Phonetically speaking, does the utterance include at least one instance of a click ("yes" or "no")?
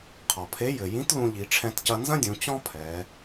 no